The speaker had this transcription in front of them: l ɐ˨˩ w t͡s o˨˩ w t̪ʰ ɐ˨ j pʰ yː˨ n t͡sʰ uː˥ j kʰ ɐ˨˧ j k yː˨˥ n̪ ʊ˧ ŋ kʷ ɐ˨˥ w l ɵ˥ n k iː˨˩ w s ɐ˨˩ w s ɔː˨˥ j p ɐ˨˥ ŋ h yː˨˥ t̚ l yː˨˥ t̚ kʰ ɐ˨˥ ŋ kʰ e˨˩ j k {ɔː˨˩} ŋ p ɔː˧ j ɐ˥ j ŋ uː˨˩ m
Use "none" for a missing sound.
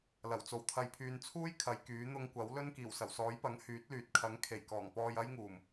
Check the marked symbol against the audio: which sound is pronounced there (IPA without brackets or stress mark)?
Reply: ɔː˨˩